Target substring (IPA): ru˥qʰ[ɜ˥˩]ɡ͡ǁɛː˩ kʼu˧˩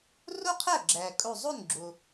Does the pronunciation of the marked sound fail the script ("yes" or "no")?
yes